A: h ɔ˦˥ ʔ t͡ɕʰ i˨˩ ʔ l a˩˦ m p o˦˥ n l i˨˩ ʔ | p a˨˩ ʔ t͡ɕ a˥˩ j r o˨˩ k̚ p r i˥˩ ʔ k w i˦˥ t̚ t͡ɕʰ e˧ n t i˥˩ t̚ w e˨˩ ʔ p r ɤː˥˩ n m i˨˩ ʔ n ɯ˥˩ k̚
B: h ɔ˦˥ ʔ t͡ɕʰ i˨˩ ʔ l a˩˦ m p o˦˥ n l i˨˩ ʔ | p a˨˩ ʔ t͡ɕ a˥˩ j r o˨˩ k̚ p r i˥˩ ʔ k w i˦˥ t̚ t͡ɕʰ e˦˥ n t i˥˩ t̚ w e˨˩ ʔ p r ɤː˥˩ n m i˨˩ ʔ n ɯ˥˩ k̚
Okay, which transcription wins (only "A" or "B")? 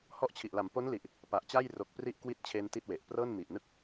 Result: A